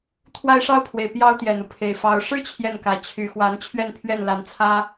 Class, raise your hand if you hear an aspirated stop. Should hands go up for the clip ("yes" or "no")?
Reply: yes